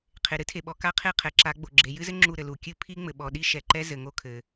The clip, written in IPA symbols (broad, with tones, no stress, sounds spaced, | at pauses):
qʰ e˨ ɾ ɨ˦ tʰ e˨ ɓ ɔ˨ k a˦ qʰ e˦˨ qʰ ɛ˨ ǁ a˨˦ ɡ͡b o˨ ɡ͡ǁ e˨ j ɨ˦ z ɘ˦ ŋ͡ǁ u˦˨ ɾ ɘ˨ l u˨ kʲ ɨ˦ pʰ i˦ ŋ͡m ɘ˨ ɓ ɔ˨ ɗ i˦ ʃ ɛ˨ ǃ ɛ˦ z ɘ˨ ŋ o˦˨ kʰ ɘ˨